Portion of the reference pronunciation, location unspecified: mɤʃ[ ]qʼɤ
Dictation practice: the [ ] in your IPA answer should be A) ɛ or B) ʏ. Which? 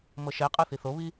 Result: A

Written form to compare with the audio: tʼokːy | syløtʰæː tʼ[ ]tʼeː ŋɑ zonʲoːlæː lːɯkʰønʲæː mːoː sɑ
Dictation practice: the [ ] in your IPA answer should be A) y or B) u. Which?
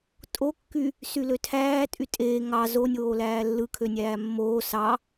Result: A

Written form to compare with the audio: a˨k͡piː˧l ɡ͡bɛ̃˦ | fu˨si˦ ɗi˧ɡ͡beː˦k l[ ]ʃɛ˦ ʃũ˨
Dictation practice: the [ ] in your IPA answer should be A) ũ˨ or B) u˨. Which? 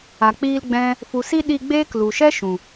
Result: B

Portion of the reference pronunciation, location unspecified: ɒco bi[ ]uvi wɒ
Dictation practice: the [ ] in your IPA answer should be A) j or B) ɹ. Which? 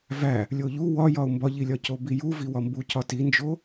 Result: A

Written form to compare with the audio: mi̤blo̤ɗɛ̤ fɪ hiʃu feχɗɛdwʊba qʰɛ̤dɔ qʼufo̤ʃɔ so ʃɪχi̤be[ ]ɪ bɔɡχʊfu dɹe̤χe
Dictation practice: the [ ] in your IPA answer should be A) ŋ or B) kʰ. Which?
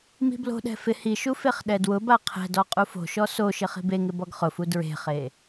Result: A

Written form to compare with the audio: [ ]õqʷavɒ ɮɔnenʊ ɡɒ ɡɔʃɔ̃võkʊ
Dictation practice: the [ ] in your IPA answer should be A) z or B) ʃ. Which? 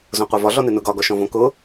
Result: A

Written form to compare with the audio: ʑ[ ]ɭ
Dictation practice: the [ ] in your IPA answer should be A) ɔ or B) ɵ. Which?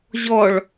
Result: A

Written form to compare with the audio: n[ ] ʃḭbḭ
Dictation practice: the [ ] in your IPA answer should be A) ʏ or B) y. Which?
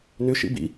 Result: A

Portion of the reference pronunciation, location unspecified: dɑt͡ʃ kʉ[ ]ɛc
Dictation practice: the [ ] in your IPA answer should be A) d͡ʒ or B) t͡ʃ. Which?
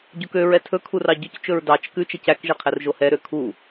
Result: B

